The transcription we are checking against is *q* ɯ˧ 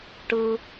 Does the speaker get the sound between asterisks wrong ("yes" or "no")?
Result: yes